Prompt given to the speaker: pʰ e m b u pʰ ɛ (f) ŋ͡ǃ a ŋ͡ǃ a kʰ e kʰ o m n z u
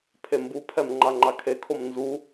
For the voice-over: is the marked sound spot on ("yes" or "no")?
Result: no